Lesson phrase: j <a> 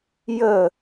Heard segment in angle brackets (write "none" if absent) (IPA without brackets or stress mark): ə